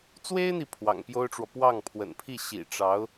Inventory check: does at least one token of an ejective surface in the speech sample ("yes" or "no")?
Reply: no